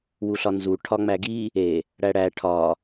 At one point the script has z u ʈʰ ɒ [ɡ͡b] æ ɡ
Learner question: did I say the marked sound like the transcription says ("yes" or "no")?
no